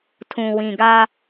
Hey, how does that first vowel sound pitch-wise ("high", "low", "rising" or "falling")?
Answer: low